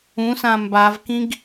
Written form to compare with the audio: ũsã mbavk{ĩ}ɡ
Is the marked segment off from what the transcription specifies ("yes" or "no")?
no